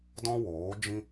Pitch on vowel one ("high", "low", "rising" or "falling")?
high